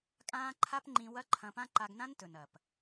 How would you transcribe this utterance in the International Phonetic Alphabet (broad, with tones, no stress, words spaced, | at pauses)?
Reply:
kʼãː˦ ǃʰa˦pŋ͡ǃĩ˧ wɐ˦ ǃʰɐ̃˧pã˦ ǃa˧ɡnã˦n tɵ˨nɐ˨p